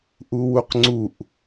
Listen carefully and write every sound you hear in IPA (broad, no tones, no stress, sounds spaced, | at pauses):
ʔ u w u q ŋ͡ǀ u ʔ